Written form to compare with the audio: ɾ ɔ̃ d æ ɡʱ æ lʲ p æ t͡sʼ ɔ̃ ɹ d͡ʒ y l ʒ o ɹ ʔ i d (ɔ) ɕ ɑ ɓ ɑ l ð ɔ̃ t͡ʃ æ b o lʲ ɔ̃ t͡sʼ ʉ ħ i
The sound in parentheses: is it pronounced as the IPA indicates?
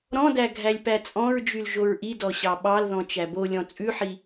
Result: yes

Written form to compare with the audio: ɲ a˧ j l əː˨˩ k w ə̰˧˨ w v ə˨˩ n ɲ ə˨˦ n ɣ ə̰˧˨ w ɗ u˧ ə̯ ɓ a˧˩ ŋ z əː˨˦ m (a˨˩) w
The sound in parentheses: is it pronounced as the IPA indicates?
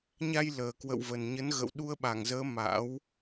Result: no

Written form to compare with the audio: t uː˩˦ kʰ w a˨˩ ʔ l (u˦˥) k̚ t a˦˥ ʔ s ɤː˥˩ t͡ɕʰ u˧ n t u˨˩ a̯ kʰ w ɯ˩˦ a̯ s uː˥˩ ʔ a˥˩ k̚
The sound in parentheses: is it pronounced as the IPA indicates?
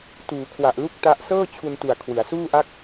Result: no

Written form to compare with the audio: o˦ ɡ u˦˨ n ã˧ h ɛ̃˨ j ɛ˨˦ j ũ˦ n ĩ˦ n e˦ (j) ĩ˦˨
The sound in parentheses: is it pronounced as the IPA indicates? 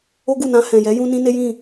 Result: yes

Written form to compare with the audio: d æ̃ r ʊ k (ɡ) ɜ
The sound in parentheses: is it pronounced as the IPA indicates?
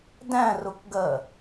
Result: yes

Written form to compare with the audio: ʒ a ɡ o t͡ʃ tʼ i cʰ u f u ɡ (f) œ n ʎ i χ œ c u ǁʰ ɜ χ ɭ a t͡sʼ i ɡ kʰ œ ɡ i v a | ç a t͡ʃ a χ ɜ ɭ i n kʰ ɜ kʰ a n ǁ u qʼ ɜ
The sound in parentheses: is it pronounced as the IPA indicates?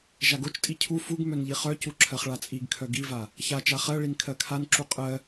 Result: no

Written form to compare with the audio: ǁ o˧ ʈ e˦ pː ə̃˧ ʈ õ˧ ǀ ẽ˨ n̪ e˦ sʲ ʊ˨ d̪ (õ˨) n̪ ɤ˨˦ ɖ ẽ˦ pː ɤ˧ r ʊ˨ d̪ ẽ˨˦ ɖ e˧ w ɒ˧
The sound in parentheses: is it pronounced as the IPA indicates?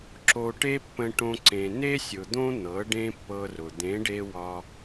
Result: no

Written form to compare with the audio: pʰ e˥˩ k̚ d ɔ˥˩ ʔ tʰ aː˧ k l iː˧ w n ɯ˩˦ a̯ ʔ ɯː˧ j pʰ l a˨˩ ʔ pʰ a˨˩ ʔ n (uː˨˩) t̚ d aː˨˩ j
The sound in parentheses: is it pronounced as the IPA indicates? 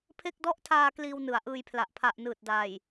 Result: no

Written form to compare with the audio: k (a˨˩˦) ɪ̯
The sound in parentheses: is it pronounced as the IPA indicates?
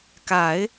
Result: yes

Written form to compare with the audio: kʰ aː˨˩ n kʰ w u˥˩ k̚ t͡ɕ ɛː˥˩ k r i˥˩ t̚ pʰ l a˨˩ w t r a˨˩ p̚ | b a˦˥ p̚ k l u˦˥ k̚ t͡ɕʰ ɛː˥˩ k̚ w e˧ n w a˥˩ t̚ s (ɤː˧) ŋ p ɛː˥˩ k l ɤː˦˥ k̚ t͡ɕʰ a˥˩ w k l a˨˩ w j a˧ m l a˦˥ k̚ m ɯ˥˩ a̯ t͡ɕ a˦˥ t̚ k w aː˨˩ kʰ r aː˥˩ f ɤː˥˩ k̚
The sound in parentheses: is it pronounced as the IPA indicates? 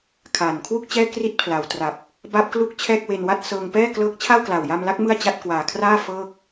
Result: yes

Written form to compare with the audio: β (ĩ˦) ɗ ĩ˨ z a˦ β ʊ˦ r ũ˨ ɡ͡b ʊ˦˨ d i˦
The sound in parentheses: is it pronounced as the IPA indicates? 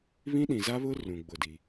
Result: yes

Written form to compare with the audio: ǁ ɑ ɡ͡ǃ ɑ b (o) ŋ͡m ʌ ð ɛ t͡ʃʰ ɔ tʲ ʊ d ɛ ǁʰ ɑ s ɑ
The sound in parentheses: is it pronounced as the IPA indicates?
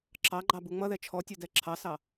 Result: no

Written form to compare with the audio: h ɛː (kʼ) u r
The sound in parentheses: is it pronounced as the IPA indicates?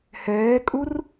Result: yes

